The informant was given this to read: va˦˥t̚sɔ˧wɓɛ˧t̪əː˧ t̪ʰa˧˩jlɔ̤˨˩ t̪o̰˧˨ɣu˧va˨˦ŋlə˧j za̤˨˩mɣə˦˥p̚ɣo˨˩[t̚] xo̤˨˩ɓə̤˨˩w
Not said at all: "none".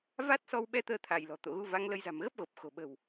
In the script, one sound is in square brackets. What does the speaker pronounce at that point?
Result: p̚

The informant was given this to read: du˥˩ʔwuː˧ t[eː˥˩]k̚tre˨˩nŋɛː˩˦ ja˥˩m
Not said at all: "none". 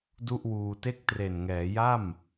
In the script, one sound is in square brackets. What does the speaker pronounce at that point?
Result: e˥˩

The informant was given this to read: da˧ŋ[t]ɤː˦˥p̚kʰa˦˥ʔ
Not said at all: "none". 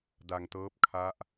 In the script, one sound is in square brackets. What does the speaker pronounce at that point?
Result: t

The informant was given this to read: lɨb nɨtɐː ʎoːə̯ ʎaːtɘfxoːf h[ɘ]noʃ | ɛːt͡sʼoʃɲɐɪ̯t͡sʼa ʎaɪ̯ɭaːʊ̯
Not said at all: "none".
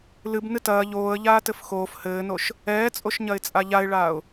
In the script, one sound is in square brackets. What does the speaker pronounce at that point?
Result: ɘː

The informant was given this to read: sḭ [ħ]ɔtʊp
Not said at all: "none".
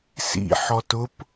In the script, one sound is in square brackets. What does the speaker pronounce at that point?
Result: ħ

